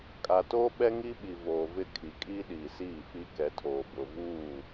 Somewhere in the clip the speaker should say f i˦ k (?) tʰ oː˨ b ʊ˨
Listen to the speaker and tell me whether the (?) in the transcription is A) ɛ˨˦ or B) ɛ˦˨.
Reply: A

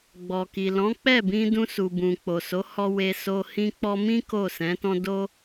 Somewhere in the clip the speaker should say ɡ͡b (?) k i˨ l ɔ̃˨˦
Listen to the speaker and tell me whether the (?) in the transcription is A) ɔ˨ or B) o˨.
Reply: A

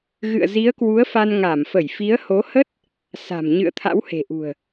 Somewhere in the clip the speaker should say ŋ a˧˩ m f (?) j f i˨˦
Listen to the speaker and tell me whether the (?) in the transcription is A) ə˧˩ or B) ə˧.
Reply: A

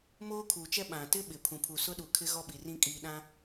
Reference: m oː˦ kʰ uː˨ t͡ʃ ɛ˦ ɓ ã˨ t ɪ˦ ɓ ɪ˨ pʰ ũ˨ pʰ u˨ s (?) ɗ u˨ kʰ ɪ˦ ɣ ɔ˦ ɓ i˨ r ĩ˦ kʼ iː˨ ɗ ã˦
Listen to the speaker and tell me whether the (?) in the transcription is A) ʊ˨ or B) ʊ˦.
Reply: B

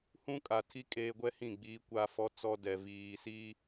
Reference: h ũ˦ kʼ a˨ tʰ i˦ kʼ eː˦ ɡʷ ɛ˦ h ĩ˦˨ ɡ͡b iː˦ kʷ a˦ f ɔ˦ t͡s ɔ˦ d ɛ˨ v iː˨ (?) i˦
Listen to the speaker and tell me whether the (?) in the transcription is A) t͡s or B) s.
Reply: B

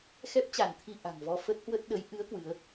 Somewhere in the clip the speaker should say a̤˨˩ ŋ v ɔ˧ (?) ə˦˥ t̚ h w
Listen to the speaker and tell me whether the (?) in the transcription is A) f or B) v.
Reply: A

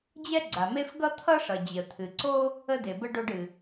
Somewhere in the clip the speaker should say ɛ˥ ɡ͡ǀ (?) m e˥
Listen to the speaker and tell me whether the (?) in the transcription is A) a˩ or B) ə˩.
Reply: A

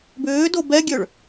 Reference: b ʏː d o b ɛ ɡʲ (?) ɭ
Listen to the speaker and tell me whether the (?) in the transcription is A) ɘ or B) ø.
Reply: B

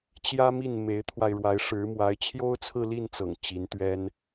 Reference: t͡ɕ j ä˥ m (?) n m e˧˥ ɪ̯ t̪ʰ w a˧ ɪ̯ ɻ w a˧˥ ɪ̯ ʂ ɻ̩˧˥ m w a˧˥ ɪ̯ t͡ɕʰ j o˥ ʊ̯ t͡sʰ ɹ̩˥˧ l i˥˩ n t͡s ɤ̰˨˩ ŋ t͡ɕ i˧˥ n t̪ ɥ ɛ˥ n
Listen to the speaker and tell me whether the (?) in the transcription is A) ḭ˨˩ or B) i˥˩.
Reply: B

